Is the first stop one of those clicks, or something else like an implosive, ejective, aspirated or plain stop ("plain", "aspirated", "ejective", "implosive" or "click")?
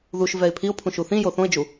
aspirated